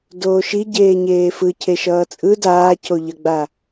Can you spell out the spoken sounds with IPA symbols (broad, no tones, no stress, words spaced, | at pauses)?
doːʃi ɟeːɲeːfɯ cʰeʃʌːt͡sʼɯ daːcoʎʌɡ͡ba